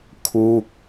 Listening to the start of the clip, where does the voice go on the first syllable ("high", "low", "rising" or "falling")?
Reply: falling